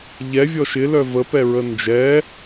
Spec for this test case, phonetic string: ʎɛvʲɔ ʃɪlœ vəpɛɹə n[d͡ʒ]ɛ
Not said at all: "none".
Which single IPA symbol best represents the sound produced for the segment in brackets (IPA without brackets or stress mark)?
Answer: d͡ʒ